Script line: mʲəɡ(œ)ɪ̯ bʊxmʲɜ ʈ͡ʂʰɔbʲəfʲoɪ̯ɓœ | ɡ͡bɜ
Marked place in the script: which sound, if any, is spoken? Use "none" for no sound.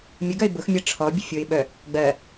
œ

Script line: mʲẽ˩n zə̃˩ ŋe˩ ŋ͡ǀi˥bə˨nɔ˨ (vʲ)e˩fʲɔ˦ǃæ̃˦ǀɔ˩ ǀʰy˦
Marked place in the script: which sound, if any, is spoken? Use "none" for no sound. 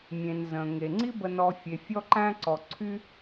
fʲ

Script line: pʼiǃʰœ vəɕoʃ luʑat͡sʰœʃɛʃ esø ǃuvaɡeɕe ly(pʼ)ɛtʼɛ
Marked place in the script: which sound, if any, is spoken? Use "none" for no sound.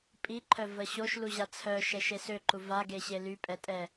pʼ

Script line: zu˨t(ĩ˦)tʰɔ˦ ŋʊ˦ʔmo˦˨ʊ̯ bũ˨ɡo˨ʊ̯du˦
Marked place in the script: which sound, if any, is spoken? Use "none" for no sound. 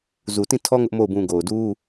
ĩ˦˨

